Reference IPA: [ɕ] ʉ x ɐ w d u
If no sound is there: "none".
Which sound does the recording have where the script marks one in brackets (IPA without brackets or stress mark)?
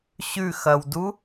ɕ